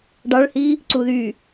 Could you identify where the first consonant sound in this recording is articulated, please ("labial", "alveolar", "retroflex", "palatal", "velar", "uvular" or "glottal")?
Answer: retroflex